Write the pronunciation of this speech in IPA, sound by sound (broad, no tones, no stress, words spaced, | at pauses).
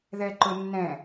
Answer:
ðɛǃʊnːɛ̃